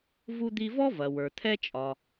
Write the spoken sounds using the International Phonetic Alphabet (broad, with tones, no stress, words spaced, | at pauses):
vu˧d̪i˧vɔ˥ vɐ˩wə˞˩t̪ʰɛ˥t͡ʃʼɒ˩